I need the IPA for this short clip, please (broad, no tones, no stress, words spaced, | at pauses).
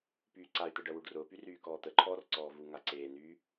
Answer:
pyːǀay̯t̪ə ɖɜwuɖrʊːpy ryːkɔːt̪əǃʰɔːr ǀɔːvuŋa ǀeːnyː